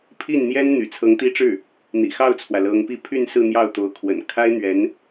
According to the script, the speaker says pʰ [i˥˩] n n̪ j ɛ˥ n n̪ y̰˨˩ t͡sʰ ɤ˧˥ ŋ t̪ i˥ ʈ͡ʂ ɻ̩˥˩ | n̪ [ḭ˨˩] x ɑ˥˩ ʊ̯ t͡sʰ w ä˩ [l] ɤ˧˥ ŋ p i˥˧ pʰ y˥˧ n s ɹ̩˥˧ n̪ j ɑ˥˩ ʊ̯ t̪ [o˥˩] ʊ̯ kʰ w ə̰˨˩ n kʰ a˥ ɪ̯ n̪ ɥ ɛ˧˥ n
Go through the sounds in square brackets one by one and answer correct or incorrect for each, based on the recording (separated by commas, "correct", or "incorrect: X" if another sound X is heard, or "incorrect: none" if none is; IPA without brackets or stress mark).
correct, correct, correct, incorrect: o˧˥